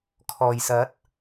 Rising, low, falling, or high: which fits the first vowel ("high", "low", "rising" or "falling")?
low